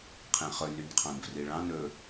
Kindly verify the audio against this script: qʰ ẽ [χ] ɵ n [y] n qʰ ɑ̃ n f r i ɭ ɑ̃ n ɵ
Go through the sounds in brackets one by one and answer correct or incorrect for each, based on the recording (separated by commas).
correct, correct